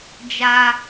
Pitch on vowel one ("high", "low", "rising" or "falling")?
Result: high